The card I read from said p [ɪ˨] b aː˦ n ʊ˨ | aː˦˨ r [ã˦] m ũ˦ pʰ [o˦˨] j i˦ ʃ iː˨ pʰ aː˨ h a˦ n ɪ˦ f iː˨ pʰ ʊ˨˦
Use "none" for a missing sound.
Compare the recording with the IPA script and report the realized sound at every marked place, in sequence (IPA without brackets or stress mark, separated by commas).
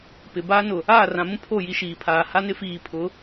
ɪ˨, ã˨, o˦˨